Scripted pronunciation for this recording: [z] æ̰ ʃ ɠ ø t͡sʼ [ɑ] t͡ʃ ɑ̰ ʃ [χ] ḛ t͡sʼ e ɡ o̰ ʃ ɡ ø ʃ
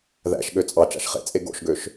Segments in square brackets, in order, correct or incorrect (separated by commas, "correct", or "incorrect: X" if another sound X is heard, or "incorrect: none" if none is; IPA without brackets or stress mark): incorrect: ð, correct, correct